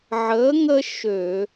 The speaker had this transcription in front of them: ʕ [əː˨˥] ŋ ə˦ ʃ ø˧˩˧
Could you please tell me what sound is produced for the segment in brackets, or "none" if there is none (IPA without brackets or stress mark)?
əː˨˥